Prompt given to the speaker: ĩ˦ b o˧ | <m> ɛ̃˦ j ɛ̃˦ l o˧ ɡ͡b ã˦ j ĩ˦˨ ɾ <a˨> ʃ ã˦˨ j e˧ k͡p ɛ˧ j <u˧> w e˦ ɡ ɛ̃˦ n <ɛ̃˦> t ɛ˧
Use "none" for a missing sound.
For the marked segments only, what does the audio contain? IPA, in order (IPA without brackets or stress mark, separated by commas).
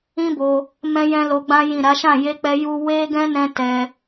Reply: m, a˨˦, u˦, ɛ̃˦